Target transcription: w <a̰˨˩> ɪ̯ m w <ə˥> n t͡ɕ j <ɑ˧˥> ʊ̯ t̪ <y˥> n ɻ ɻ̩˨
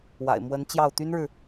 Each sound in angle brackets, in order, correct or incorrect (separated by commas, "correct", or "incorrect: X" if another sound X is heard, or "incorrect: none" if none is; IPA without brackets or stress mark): correct, incorrect: ə˧˥, incorrect: ɑ˥˩, correct